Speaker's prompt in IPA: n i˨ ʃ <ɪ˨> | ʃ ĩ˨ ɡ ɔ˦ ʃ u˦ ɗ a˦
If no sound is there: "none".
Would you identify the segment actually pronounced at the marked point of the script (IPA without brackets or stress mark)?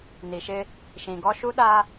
ɪ˦